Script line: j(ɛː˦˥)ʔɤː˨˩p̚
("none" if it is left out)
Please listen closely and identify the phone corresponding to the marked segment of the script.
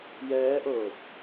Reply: ɛː˦˥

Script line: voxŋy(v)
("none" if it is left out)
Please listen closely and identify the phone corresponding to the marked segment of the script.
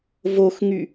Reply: none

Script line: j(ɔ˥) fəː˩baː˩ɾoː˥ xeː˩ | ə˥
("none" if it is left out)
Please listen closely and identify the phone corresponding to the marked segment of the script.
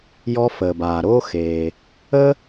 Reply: ɔ˥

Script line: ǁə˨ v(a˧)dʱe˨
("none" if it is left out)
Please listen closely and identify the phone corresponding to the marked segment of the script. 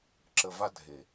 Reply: a˧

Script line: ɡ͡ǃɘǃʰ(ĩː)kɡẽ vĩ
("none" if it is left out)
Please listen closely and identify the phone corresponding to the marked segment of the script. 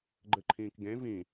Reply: ĩː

